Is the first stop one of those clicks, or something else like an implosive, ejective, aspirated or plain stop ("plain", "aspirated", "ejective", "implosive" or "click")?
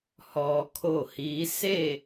aspirated